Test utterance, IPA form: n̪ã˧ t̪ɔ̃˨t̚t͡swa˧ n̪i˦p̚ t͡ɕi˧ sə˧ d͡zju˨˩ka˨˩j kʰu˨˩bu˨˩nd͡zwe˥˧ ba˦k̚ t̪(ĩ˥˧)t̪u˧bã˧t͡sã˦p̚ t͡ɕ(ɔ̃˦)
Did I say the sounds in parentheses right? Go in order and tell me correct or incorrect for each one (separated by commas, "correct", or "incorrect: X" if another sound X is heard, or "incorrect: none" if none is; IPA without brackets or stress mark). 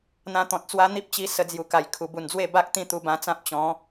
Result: correct, incorrect: ɔ̃˨˦